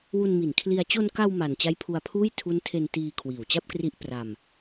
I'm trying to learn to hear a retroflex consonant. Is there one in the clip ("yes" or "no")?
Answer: no